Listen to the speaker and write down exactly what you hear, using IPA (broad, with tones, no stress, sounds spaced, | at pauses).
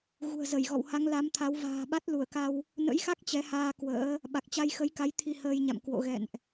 ɣ ṳ˨˩ ə̯ z ə˧˩ j ɣ ɔ̰˧˨ w h a˨˦ ŋ l a˨˦ m t̪ʰ a˨˦ w v a̤ː˨˩ ɓ a˦˥ t̚ l u˧˩ ə̯ k a˧ w | n ə̰˧˥ j x a˦˥ k̚ t͡ɕ ɛ˨˦ h aː˧ k w ə̰ː˧˥ | ɓ a˨˩ k̚ t͡ɕ a˧ j x ə˨˦ j k a˨˦ j t̪ʰ i˧ h əː˧ j ɲ a̰˧˨ m k w o̰˧˨ ɣ ɛ̰˧˨ n ʔ